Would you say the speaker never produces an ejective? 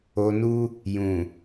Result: yes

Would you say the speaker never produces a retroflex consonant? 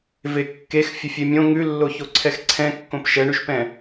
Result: no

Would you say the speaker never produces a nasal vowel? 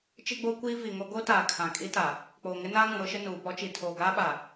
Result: no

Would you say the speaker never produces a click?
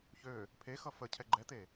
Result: no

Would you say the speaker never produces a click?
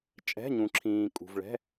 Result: no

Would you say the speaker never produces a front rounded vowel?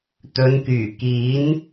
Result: no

